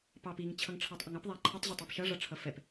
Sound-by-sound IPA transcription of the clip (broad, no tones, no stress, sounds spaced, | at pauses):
p ɑ p i ŋ t͡ɕʰ ʌ ŋ ʈ͡ʂʰ ɑ tˤ ʔ ə ŋ ʌ p ðˤ æ ǃʰ ə tˤ ʑ ɛ tˤ æ p ʃ ʌ ʐ ʌ ʈ͡ʂʰ ʌ f ɛ p